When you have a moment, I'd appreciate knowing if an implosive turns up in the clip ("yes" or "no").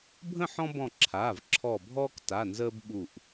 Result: yes